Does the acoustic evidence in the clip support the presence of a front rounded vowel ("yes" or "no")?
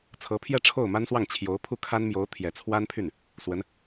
yes